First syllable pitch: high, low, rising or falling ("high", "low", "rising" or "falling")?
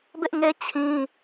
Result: high